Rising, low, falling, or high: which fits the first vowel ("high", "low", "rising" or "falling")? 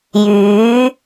rising